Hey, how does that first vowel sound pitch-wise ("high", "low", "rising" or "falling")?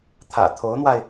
low